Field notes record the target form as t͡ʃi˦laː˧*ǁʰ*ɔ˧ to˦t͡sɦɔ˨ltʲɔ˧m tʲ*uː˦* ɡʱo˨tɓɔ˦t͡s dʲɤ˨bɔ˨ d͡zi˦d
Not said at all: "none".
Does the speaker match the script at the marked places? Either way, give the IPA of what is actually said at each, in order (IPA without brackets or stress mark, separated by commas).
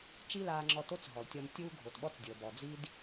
ŋ͡ǁ, uː˦